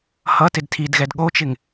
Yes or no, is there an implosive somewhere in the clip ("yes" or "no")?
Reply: yes